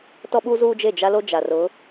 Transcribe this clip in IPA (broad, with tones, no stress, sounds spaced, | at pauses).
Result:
t ɔ˦ ɓ u˦ z uː˦ d͡ʒ e˦˨ d͡ʒ a˦ l o˦ d͡ʒ a˨ r ʊ˨˦